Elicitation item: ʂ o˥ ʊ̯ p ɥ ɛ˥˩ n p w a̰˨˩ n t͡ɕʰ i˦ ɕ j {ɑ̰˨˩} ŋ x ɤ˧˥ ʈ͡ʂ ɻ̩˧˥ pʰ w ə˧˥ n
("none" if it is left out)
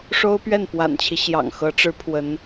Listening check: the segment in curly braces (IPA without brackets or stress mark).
ɑ̰˨˩